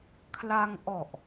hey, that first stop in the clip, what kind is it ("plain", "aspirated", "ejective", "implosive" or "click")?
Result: aspirated